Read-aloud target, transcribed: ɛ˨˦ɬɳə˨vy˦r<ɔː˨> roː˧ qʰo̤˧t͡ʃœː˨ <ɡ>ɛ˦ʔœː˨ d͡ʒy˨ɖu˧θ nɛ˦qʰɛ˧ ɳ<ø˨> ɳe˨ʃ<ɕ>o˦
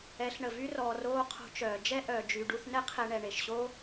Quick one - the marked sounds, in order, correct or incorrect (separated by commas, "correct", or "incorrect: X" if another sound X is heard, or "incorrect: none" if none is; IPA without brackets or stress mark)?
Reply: correct, incorrect: d͡ʒ, incorrect: ɛ˨, correct